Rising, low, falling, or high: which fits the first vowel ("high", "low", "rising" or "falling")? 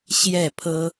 falling